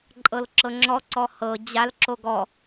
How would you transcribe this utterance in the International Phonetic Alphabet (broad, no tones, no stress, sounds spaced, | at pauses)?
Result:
ǃʼ ɤ l ǁ ɤ ŋ͡ǁ ɔ ǀ ɔ h ɤ d͡ʑ a l ǁ o ɡ ɔ